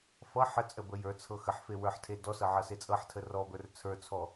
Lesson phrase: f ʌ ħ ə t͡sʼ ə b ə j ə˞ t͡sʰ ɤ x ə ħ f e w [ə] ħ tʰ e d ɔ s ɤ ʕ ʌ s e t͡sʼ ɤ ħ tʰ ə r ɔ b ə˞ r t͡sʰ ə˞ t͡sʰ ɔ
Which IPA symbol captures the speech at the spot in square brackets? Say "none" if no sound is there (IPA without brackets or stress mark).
ə˞